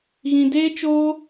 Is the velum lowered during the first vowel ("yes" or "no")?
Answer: yes